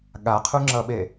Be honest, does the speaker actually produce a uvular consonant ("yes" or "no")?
yes